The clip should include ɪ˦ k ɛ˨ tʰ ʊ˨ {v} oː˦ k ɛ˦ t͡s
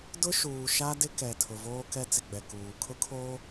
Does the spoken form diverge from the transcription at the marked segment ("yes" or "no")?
no